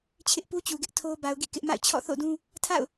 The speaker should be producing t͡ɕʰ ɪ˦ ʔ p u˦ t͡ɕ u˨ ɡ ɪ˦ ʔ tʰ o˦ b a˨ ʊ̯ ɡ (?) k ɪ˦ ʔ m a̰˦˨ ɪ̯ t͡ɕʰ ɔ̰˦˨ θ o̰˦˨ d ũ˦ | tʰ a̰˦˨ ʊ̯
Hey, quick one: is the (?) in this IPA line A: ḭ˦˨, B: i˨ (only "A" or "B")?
A